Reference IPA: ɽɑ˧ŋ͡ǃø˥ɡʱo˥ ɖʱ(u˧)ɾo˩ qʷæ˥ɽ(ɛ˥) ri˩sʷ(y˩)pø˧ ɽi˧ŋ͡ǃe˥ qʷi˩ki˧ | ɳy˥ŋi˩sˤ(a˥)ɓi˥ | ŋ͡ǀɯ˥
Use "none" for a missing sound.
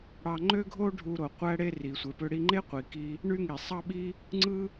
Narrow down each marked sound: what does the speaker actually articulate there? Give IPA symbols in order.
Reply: u˧, e˥, e˩, ɑ˥

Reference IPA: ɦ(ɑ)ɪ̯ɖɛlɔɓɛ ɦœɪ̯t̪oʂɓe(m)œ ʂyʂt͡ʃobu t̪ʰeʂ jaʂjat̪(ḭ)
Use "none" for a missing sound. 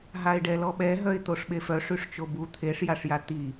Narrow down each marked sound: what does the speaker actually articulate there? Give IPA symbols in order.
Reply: a, f, i

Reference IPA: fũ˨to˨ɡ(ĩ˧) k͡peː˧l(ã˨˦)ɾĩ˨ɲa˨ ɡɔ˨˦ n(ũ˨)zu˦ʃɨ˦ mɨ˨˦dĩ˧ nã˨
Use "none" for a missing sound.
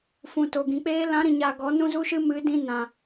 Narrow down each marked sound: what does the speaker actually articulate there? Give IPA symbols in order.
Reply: ĩ˨, ã˨˦, ũ˦

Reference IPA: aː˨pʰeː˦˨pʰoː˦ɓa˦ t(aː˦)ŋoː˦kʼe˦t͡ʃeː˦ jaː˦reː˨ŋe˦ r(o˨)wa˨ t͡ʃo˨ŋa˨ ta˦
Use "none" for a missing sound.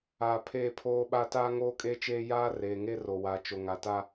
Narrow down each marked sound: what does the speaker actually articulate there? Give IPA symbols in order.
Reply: aː˦, o˨

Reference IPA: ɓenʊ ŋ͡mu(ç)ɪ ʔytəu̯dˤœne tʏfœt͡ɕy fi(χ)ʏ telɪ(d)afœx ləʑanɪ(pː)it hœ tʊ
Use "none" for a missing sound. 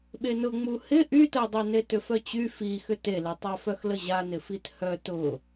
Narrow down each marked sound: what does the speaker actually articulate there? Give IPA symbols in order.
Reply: h, x, tˤ, f

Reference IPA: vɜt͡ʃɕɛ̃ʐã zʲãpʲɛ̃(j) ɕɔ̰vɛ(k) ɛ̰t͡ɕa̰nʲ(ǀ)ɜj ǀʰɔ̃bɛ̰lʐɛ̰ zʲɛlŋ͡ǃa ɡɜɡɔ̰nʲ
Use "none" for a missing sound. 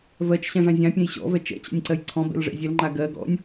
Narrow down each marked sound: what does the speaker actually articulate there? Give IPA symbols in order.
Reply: j, t͡ʃ, ǀ

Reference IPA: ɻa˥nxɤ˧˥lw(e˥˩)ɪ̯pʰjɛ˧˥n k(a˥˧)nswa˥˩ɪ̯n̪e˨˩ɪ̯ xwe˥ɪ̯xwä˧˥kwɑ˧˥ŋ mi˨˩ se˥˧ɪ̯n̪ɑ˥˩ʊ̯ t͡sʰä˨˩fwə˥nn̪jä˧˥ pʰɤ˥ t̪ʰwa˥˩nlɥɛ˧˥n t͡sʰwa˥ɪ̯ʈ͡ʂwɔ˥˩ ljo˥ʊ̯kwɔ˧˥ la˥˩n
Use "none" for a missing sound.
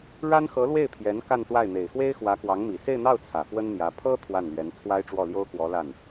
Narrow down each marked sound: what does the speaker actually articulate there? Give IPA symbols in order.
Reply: e˥˩, a˥˧

